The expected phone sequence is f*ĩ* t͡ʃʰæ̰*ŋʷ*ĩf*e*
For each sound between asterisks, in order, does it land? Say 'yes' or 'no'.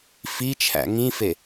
no, no, yes

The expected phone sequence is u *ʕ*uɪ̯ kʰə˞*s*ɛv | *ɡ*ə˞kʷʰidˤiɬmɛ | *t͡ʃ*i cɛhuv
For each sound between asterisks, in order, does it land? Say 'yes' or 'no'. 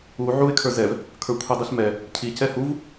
yes, no, no, no

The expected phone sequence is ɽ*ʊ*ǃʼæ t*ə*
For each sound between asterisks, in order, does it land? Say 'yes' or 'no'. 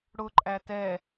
yes, no

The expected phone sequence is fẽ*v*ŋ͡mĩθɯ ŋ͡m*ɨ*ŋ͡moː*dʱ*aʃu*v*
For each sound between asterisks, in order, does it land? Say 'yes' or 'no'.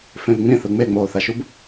yes, no, no, no

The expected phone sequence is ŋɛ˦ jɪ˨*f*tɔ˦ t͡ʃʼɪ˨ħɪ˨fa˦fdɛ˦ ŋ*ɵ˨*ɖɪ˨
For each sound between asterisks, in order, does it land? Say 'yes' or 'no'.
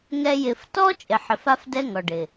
yes, no

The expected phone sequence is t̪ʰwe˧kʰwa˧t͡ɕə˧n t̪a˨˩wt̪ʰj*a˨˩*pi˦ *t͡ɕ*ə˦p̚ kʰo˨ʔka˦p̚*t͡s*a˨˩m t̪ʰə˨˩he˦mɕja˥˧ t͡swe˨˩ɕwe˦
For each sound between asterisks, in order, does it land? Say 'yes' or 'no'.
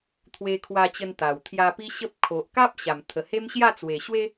no, no, no

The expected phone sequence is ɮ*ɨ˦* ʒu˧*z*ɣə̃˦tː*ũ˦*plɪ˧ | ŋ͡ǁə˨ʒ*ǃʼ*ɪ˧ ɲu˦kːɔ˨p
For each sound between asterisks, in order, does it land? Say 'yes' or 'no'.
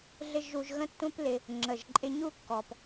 no, no, yes, yes

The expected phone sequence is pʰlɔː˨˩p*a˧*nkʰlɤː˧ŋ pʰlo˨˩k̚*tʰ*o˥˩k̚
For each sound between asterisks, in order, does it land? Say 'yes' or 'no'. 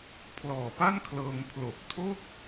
no, yes

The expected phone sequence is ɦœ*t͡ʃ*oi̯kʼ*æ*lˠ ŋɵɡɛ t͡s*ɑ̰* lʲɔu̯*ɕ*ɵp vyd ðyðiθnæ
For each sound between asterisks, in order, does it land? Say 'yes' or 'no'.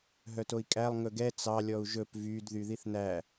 no, yes, no, no

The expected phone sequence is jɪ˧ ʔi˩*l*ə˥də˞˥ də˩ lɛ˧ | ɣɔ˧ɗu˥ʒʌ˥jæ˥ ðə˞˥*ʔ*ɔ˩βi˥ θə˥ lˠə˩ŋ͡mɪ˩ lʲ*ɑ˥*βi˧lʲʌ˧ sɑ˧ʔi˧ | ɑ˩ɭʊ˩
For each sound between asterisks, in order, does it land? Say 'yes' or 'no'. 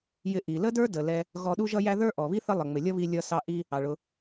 yes, yes, no

